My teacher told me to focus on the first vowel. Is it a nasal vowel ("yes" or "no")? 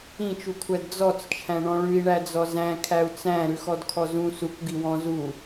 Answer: yes